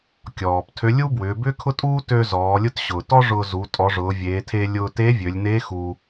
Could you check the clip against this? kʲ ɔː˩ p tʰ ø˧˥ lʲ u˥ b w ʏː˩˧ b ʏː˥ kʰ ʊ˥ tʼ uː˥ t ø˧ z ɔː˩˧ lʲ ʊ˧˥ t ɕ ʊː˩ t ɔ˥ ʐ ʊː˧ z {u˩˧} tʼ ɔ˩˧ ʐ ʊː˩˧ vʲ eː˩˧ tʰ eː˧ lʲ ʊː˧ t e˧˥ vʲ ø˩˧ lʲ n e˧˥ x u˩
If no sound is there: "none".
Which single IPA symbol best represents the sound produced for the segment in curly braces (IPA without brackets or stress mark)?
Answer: u˩˧